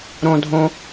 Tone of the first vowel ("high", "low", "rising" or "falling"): low